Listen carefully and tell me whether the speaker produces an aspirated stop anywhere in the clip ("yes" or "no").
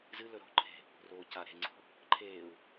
yes